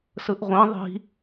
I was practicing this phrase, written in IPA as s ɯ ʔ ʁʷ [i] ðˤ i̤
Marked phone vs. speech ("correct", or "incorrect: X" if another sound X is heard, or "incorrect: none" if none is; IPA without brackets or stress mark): incorrect: ĩ